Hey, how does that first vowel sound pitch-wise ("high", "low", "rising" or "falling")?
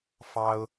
high